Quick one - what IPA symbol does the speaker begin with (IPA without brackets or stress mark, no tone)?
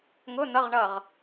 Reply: ŋ